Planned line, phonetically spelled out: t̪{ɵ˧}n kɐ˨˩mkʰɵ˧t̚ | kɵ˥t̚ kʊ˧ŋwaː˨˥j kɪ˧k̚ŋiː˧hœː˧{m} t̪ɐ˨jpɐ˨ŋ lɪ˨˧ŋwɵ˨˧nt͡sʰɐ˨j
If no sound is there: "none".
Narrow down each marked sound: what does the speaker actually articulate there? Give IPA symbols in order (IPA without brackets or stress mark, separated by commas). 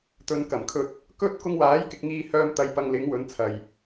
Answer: ɵ˨, m